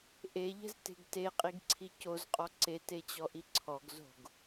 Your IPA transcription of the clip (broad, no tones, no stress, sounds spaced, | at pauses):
ʔ e ʎ ɛ̤ z t e̤ ɡ t e qʼ i ɡ ǀʰ i c o z qʼ ɔ ǀ e t e t͡ɕ ɔ ʔ i ǀʰ ɔ ɡ z o̤ ɡ